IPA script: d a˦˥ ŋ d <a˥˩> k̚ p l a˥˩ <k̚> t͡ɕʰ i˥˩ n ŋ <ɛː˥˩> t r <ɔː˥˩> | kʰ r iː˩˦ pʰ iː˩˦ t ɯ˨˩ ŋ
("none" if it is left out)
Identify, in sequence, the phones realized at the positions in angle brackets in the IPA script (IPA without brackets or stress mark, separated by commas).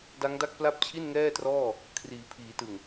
a˥˩, p̚, ɛː˥˩, ɔː˥˩